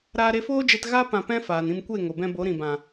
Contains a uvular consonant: no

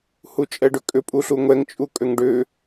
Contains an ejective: yes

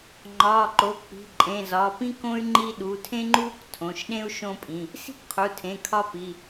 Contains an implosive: yes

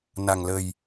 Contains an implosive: no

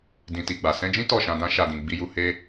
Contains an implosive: no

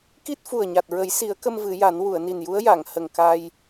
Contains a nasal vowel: no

